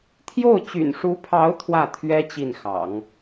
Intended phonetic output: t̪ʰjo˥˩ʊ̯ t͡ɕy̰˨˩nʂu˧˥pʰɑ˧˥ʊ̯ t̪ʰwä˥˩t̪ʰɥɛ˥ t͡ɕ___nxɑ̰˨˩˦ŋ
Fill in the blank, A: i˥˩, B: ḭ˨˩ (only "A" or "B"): A